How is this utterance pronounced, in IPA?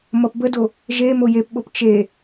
m ʌ p b ə d o | ʒ e m o j e p ɓ o p t͡ʃ e

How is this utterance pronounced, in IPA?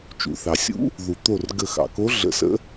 t͡ʃ ṵ˩ θ ɑ˩ sʲ ṵ˧˥ | ð u˩ t̪ o˧˩ r ɡ ə˧˩ x ɑ̰˩ k o˧˥ ɮ ə̰˧˩ s ə̰˧˥

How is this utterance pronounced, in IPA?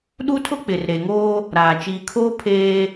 ɗ u˦ tʰ ʊ˦ k͡p ɪ˨ r ɾ e˨ ŋ oː˦ | ɾ aː˨ t͡ʃ iː˨ kʰ oː˦ pʰ eː˦

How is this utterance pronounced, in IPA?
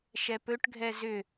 ʃ ɛ p ɵ ʈ ɡʱ ɛ z ʏ

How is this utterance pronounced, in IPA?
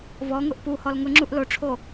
v ɔ ŋ ʊ ʔ p u h ɔ l ŋ ʊ ŋ͡ǁ u ʔ l o ʈ͡ʂʰ o

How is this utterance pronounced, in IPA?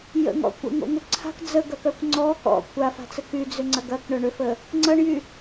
j ə̰ ŋ ɔ̰ kʷ ə̰ ŋ o̰ ŋ ʏ ǀʰ a̤ k d͡z ə ɡ ɐ k œ kʷ ŋ͡ǀ ɔ k ɔ̰ kʷ a f a̤ t͡s ə k y d͡z ʏ ŋ͡ǀ ɐ ɡ ɐ k ɳ œ ɳ ʏ f ə | ŋ͡ǀ ɐ ɳ j y

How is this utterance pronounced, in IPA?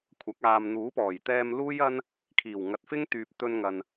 kʷʰ ɐ˨˥ k̚ aː˨ m n̪ uː˨˥ p ɔː˨˩ j t̪ ɛː˧ m l uː˥ j ɐ˥ n | kʰ iː˨˩ w ŋ ɐ˨ t̚ f ɪ˥ ŋ t̪ yː˨ p̚ t̪ ɵ˧ n ŋ ɐ˨ n

